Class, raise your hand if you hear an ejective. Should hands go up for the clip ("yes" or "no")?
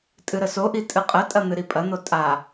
yes